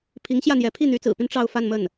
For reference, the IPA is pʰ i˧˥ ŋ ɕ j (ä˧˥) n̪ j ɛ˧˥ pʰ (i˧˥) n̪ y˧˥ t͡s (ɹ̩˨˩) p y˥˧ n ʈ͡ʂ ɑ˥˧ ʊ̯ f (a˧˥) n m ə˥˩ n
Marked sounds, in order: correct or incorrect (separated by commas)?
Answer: incorrect, incorrect, correct, incorrect